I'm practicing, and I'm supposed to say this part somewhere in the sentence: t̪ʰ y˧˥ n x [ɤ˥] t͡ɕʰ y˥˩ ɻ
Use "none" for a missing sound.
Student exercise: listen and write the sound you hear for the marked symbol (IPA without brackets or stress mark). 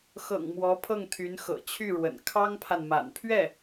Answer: ɤ̰˨˩